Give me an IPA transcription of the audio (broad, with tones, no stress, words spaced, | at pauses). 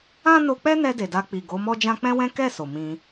ã˦no˧k͡pɛ˦nɛ˧ de˨da˧k͡pi˨ ɡo˨˦mɔ˦d͡ʒã˦ k͡pɛ̃˦wɛ̃˦ kɛ˦˨ so˨ mĩ˧